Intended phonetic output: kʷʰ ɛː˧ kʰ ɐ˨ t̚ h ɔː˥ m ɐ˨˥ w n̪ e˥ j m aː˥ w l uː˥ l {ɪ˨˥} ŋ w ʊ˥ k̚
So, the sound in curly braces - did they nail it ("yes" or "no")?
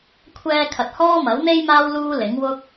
yes